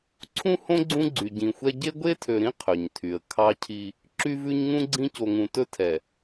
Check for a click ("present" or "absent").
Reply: present